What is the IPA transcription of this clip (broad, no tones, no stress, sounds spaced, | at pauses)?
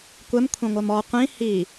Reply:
kʷ ɛ m kʷʰ ɛ̃ ŋʷ ɜ m ɔ qʷ ĩ h i